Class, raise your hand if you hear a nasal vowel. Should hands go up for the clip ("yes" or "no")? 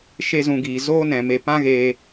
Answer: yes